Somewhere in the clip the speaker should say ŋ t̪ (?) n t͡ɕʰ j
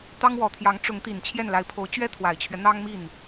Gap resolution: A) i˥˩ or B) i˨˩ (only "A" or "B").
B